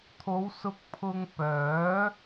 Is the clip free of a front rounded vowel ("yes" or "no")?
no